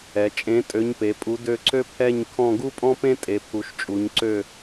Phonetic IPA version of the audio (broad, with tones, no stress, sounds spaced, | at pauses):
ɛ˩˧ t͡ʃʼ ẽ˨˥ tʼ ø˨˥ ɲ p e˩˧ pʼ u˨˥ d ø˦˨ ǀ ø˥ pʰ ɛ˦˨ ɲ kʰ ɔ̃˦˨ ɡ u˥ pʼ ɔ̃˥ p ẽ˥ tʼ e˩˧ pʰ u˩˧ ʃ t͡ʃʼ u˩˧ ɲ ǀ ø˦˨